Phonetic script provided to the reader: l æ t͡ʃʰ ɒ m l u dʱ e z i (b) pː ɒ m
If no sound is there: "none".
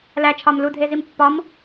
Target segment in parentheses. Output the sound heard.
m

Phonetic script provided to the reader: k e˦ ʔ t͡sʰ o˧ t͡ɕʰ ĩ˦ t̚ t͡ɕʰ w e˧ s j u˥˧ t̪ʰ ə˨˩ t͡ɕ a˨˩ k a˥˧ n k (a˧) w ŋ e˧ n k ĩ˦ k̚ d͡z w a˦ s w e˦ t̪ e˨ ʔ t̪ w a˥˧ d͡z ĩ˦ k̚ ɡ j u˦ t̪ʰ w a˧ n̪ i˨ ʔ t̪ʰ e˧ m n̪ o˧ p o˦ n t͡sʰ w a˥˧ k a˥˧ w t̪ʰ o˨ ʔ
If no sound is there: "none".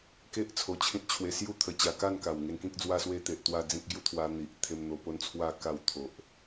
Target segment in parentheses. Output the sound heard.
a˨˩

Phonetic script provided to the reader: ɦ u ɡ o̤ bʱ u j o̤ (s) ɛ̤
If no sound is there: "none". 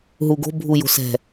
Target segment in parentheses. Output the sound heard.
s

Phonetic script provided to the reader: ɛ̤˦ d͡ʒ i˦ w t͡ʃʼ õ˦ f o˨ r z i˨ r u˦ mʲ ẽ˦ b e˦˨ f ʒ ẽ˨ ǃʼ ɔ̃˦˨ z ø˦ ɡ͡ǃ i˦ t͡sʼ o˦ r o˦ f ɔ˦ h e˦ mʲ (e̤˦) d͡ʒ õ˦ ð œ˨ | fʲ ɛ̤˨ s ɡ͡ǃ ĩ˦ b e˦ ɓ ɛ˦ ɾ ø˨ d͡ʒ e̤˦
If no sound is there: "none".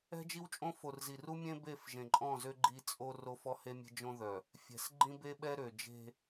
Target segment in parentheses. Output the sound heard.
e̤˦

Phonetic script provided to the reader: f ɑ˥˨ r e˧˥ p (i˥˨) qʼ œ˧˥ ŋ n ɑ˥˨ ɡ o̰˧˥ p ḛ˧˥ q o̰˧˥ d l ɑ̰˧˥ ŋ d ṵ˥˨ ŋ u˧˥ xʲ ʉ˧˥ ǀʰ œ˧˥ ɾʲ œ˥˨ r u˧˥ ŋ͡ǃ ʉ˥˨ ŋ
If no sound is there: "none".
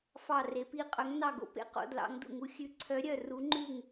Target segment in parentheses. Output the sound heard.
i˥˨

